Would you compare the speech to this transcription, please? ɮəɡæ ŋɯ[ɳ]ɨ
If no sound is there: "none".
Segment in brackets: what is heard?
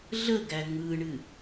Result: ɳ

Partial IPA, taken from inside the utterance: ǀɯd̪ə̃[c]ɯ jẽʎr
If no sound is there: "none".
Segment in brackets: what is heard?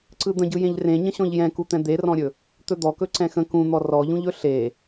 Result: ɟ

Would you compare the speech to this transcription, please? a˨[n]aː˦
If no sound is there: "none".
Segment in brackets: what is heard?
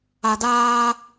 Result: d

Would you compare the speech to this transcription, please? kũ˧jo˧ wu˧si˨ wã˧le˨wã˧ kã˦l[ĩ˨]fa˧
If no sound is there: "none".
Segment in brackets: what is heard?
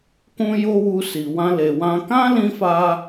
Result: ĩ˧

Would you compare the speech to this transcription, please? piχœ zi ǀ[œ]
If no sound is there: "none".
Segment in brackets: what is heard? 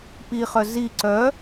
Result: œ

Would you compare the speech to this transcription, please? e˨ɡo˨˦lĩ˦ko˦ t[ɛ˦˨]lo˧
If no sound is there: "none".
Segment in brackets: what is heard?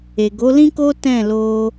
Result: ɛ̃˦˨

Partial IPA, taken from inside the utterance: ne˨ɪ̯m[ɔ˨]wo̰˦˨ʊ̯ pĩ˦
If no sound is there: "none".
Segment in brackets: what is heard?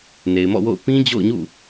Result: ɔ̰˦˨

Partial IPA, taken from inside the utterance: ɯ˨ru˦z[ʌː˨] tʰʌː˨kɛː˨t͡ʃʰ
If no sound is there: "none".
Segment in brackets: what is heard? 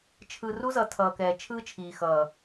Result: ʌ˨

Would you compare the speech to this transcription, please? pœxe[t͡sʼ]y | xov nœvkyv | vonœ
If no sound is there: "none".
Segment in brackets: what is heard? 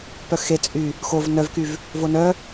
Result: t͡sʼ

